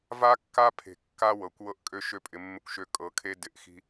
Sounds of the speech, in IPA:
v a˦ kː a˦ pʰ e̤˧ kː a˦ w ɤ˨ kʷ w ɤ˦ ʔ kʼ ø˦ ʃ ø˦ pʼ ɪ˧ mː ɪ˦ kʷ ʃ ø˧ kʼ ɤ˨˦ kʰ e˦ d ɪ˧ ʔ x i̤˦

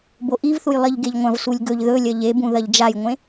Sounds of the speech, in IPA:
b o ʔ i v θ u j lˠ i ʎ ɡ e ʎ ŋʷ ɐ̃ v s u lʲ ɡ ɵ ʎ ð ɵ lʲ ɐ ʎ e b ũ ð ɐ ʎ d͡ʒ a j ŋʷ ẽ

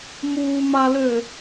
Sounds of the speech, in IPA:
m uː m a l ø

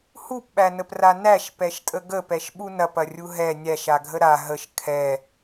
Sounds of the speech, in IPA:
h u p ɓ æ n ə p r a n æ ʃ p ɛ ʃ tʼ ə ɡ ə p ɛ ʃ ɓ u n ɐ p ɐ rʲ u ɦ ɛ nʲ æ ʃ a ɡʱ ə ɾ a ɦ ə ʃ kʰ ɛ

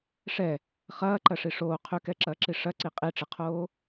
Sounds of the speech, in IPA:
ʂ ɛ | χ ɐː ǃ ɐ ʂ i ʂ oː qʰ ʏ k ɛ ǁ ɐː ǁ i ʂ ɐ ǀ i qʼ i ʈ͡ʂ ɪ qʰ oː

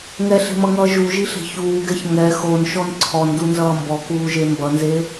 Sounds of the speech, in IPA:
ŋ ɛ ɬ e̤ m ʌ ŋ ʌː ʒ u ʒ i ɬ e̤ ç uː ɡ ɛ ç ŋ ɛ x o n ʃ ɔ n ǀʰ ɔ n d u n z ʌː m b ɔ k uː ʒ e m b ʌ n z e

